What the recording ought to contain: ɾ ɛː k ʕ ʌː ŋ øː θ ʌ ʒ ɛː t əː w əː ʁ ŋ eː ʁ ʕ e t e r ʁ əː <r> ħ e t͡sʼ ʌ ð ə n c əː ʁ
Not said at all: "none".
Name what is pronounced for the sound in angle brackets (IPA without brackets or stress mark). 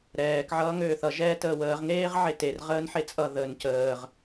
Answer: n